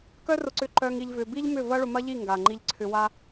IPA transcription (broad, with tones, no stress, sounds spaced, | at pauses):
k œ˦ r ʊ˧ ǀ ʏ˧ ǃ œ˧ ŋ i˧ ʎ v ʏ˧ b i˦ ʎ m ʏ˦˨ v ɐ˦ ɭ ʊ˧ m ɐ˦ ʎ i˦˨ ŋ ɡ a˨ ŋ͡ǃ i˧ ʎ ǀʰ ʏ˧ w a˦